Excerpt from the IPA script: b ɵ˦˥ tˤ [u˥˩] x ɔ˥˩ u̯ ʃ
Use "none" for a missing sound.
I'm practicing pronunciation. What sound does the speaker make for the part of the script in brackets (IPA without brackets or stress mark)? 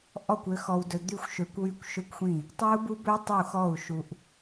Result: u˥˩